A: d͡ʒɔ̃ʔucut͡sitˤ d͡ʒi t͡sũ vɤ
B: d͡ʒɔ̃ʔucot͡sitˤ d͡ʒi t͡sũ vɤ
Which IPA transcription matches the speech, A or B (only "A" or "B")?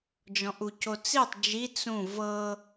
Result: B